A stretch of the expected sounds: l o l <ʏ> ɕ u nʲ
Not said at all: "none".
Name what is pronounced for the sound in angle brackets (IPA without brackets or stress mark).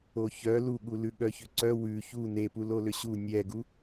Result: ʏ